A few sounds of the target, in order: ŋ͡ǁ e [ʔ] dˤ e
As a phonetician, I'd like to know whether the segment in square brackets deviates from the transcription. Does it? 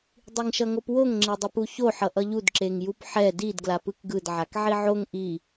yes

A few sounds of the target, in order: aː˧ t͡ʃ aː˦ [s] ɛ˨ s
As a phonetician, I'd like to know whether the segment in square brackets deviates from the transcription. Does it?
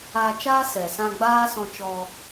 no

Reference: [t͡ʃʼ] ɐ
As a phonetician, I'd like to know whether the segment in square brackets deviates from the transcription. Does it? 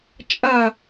no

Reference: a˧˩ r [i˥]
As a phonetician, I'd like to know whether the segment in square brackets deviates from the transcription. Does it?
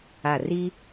no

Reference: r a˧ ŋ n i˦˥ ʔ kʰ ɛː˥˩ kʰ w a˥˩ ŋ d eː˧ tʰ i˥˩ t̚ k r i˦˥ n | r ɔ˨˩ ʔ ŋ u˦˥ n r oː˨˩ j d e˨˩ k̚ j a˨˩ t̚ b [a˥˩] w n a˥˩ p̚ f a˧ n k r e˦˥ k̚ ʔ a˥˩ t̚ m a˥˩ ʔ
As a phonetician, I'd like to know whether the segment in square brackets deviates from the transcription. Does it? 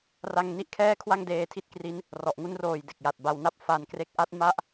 yes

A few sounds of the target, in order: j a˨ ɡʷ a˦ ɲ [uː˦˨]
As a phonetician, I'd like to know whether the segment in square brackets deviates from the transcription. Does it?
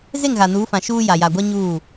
no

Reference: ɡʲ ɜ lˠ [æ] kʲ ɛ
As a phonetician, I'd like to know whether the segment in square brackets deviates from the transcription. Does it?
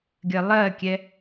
yes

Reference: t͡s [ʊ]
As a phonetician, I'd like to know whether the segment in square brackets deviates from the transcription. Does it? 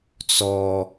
yes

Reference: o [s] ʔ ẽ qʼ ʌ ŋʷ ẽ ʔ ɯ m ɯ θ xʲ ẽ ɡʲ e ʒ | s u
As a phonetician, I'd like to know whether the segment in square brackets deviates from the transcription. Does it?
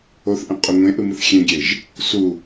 yes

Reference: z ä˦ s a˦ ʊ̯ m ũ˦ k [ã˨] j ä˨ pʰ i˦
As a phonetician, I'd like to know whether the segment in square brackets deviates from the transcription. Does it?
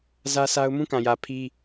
no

